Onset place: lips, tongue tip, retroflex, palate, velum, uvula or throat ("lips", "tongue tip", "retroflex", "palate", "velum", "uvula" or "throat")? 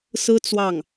tongue tip